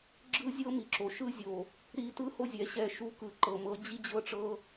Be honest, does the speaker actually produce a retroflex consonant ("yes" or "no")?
yes